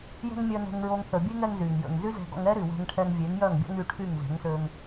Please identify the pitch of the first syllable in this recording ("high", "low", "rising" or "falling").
high